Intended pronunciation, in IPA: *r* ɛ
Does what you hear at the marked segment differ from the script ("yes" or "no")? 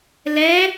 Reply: yes